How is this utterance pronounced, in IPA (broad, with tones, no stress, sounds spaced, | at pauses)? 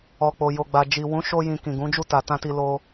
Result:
ɔ˨ k͡p o˨ j o˨ ɡ͡b a˨ d͡ʒ i˨ w ũ˨˦ ʃ o˧ j ĩ˨ k ĩ˨ ɡ ũ˨˦ d͡ʒ u˦˨ t a˨ t ã˧ t i˧ l o˧